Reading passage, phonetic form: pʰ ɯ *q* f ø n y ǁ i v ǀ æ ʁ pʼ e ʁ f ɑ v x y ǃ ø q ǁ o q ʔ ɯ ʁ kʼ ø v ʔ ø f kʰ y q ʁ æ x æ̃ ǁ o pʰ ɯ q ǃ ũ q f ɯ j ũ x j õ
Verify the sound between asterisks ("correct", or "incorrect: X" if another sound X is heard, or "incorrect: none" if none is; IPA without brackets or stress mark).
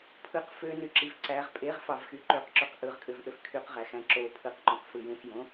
correct